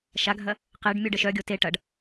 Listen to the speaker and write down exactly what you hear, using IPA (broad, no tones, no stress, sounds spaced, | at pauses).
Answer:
ʃ a ɡʱ ɐ | q e ɖ mʲ u ɖ ə ʃ œ ɡʲ o t e ʈ ɐ ɖ